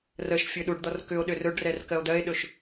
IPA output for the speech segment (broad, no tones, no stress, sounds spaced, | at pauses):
r ə ʃ fʲ ɵ ɗ u ɖ d̪ ɔ r k ʏ o̯ ɗ ʏ r ɵ ɖ r ɛ r k ɜ o̯ d̪ ɜ e̯ ɗ ɵ ʃ